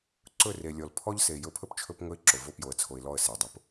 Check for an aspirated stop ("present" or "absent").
present